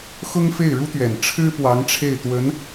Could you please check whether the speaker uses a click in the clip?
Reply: no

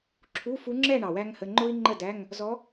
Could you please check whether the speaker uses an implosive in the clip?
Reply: no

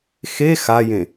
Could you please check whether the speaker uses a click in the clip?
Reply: no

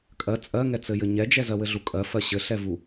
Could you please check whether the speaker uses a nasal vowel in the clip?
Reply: no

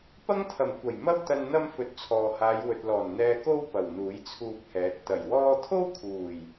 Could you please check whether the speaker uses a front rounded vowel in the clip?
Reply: no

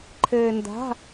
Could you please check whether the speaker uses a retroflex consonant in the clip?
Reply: no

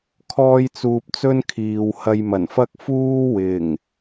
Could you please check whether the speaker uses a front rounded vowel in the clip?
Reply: no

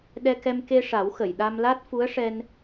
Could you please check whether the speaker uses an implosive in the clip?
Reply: yes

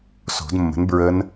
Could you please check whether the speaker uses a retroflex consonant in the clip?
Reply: no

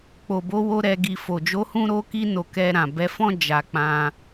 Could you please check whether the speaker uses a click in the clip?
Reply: no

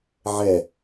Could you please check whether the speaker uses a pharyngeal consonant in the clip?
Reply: yes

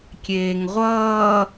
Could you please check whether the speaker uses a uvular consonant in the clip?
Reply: yes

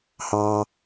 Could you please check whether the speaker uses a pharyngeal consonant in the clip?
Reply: no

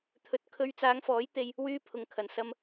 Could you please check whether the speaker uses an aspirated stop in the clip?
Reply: yes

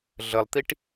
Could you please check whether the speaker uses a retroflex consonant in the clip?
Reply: yes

